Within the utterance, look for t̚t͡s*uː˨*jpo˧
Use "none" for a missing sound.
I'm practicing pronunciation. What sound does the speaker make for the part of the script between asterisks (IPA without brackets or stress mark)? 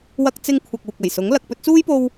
uː˥